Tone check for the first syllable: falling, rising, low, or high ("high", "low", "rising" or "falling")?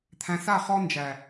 low